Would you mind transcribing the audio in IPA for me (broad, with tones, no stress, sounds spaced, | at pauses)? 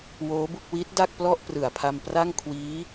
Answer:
w oː˦˥ b u˥˩ k̚ w i˦˥ t̚ d a˥˩ k̚ p l ɔ˥˩ ʔ p r ɯ˨˩ a̯ pʰ a˧ m p r a˥˩ ŋ kʰ w iː˦˥